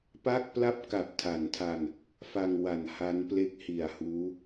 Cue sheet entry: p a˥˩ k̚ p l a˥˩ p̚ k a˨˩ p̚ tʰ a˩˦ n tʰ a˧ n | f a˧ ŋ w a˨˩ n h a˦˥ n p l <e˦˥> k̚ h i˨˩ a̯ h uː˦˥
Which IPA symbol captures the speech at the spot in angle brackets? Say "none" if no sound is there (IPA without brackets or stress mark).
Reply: e˦˥